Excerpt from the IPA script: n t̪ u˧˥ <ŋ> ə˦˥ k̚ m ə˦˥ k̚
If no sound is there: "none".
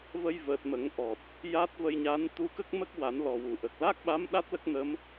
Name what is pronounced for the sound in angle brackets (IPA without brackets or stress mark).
k